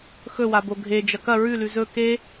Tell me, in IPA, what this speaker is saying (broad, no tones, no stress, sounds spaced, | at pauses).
x ɵ w a b o ɡʱ e d͡ʒ ɐ k ɐ ɹ ʉ l ʉ z ɵ k e